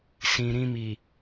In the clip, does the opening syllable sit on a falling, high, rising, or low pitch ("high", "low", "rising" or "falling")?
low